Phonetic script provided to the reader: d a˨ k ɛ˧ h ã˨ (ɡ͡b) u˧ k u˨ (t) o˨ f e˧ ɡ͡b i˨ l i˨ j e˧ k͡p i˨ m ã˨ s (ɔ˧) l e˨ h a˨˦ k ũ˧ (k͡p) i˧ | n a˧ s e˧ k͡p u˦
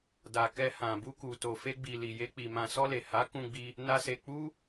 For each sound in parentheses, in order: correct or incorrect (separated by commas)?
incorrect, correct, correct, incorrect